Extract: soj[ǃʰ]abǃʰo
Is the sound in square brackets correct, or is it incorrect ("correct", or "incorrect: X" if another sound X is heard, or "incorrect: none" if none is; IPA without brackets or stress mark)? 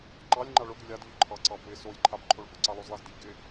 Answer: correct